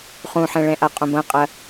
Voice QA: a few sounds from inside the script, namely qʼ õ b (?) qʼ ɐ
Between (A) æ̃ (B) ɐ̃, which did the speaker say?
B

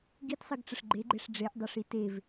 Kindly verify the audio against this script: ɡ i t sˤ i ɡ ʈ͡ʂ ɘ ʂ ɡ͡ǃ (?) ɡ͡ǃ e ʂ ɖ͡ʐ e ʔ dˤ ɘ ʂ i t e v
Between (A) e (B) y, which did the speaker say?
A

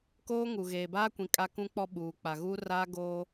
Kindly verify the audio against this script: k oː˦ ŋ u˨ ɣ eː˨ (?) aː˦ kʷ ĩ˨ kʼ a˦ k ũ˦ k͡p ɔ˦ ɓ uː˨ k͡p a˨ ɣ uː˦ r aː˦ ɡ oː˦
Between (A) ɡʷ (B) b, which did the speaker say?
B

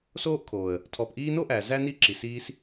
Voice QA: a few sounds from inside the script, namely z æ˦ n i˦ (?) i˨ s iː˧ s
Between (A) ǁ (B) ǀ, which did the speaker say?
A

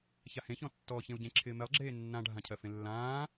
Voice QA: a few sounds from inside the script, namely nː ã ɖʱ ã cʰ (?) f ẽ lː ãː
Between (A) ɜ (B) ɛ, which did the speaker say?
A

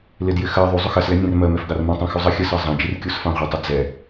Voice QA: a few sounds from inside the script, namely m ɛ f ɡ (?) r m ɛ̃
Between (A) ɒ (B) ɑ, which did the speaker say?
B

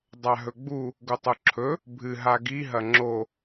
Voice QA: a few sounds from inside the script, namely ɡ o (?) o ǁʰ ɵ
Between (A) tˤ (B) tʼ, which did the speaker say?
A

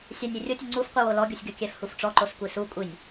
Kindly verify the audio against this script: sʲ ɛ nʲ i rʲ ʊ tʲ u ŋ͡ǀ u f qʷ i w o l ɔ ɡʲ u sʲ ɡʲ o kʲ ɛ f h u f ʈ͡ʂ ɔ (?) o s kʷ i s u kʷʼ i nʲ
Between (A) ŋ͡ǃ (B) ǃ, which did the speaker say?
B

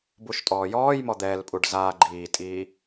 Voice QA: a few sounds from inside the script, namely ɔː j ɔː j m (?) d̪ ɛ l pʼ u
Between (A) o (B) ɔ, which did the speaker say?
B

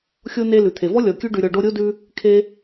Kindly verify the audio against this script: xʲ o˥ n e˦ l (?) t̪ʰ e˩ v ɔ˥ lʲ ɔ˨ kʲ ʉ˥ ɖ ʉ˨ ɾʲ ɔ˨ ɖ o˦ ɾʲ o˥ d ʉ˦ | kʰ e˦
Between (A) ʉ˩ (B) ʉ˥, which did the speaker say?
A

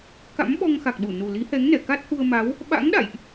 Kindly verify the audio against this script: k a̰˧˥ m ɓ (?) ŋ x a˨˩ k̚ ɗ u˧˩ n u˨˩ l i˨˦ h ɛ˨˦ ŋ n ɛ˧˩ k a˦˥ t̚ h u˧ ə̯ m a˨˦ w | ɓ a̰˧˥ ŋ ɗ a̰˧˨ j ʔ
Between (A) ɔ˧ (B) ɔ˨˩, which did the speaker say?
A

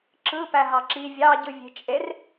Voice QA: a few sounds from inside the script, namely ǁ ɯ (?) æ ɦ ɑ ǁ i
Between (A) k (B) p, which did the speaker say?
B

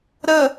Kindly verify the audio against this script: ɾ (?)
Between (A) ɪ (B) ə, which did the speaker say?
B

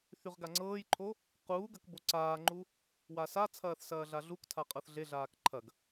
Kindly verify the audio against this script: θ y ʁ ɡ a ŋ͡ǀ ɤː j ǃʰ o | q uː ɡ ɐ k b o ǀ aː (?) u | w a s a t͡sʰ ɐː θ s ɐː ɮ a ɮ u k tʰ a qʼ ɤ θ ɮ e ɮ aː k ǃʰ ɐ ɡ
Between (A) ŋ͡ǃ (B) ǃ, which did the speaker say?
A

